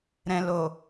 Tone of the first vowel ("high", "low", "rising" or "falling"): low